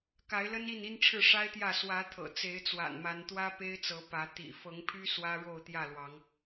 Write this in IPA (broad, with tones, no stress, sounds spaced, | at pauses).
k a˨˦ ɪ̯ l ə˦ n i˥˨ n i˦ n ʈ͡ʂʰ ɻ̩˥˨ ʂ a˦ ɪ̯ t̪ j ä˥˨ s w ä˨˦ t̪ʰ ɤ̰˨˩ t͡s e˨˦ ɪ̯ t͡s w a̰˨˩ n m a˨˦ n t̪ w ä˦ p e˦ ɪ̯ t͡s ɤ˨˦ p ä˨˦ t̪ ḭ˨˩ f ɤ˨˦ ŋ pʰ y˦ s w ä˦ ɻ o˥˨ ʊ̯ t̪ j ä˥˨ l w ɑ˨˦ ŋ